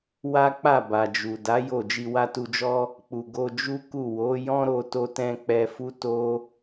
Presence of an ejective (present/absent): absent